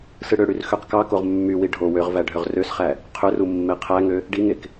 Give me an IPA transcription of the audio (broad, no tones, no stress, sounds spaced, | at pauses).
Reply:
s ɯ ɽ ø ɽ y r x ø q k ɑ k o ʁ mː y w i ɖʱ o w ø ʁ v æ ɖʱ ø ʁ r ø s χ æ | qʰ ø r u mː e qʰ æ ŋ ø | ɖ i ŋ e k